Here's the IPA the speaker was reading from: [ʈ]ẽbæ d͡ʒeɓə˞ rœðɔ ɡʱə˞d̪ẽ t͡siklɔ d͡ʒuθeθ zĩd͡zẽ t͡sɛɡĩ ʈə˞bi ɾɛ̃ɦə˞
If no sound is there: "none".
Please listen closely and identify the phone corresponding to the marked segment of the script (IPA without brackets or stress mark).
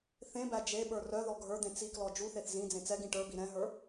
θ